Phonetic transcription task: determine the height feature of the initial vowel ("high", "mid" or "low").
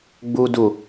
high